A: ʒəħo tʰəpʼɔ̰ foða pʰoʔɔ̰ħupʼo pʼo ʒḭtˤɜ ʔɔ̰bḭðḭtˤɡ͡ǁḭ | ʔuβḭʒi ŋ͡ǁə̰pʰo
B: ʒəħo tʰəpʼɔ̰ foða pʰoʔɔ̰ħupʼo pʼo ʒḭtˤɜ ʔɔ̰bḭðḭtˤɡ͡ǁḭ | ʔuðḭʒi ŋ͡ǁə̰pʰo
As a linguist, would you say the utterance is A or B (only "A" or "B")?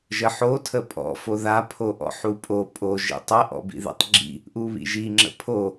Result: A